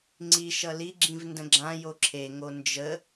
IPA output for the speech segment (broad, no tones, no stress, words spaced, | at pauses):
ŋ͡ǀiʃʌ liɡ͡ǁĩv ndə̃ɡ͡ǁãjo ǁʰeŋo nd͡ʒə